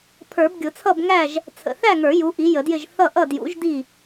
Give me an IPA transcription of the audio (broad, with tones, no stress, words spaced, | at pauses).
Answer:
pʰə˞˨˩˦bɡʲʊ˨˩˦t͡sʰʌ˥˨bŋæ˥˨ʒ | t͡sʰə̰˨˩θæ˥˨ŋə˞˨˩˦ ju˨˥ʔi˨˥jə˨˩˦djɪ˥˨ʒ θʌ˥˨ʔʌ˥˨ djṵ˨˥ʒdi˥˨